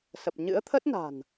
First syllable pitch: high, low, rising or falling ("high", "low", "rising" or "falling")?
low